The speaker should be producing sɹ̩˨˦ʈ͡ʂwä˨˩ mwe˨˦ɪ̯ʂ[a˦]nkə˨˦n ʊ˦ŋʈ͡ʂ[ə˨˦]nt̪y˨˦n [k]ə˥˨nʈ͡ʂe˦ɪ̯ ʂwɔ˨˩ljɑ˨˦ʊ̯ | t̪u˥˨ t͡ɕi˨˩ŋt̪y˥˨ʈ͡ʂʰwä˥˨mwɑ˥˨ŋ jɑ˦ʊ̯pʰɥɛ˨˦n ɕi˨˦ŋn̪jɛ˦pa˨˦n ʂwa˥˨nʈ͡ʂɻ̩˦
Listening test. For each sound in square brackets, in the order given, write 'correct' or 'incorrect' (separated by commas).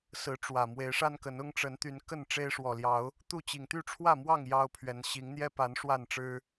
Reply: correct, correct, correct